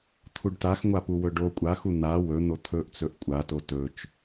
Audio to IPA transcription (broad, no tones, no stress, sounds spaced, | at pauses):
t̪ʰ u ɖ t a x ŋʷ a p u w ɵ ɖ o kʷʼ a x u n̪ a w ɵ n̪ o t̪ʰ ɵ ʔ t͡s ɵ ʔ kʷʼ a t o t ɵ t͡ʃ